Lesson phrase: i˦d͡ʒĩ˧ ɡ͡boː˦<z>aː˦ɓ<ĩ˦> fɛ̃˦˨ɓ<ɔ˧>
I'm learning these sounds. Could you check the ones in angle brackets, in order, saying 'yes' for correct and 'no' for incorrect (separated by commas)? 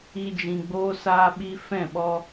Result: no, no, yes